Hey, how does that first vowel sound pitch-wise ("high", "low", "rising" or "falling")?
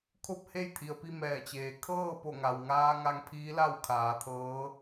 falling